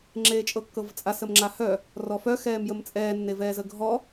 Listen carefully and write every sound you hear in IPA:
ŋ͡ǁeːt͡ʃʼɤkːɤvt͡sʼas əmŋ͡ǁahœ | rɔfœ xɛːmjəmt͡sʼɛː nːevɛːzəɡʱɔ

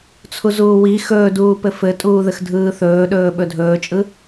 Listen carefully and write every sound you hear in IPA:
t͡sʰuzuːwi xɵːduːpɘ fɘtʼuːðɘx dʱɯːθɵːɗɵː ɓɵdʱɵːt͡ʃʼɯ

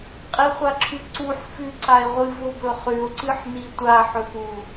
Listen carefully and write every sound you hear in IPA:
qʼiχʷaǁʰʉǀuħ fʉǀae̯ʁʷɨ vobɵχʉo̯ ǀɨħnitʷa ħɵpu

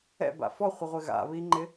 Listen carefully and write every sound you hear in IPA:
ɛ̰ba̰ fɔχʷɪʁʷɪ ɣa̰βiŋ͡ǃɪ

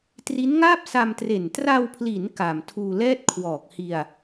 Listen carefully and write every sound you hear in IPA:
tri˦˥nŋaː˥˩p̚ sa˧mtre˨˩n tra˧wpʰli˩˦n ka˨˩m tʰuː˧lɛː˥˩t̚ kʰwɔː˨˩k̚hi˧a̯

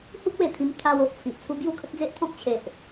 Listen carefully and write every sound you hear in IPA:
hu˦k̚we˨˩t̪ʰĩ˧m t̪ʰa˧wo˨ʔ t͡sʰi˨ʔt͡sʰu˦ bju˥˧kʰə˦t̚d͡ze˦ʔt̪ʰɔ̃˦k̚ t͡ɕʰe˨ʔ

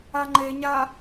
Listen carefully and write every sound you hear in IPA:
aŋ͡ǃeɲa

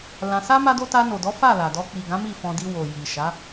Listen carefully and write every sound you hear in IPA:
lã˧ sa˦ ma˦do˦ ta˧no˨dɔ˨˦ fa˦˨la˨dɔ˧ k͡pi˨ɡã˨˦ mi˦˨fɔ̃˧di˧wo˨ ji˨ʃa˨˦

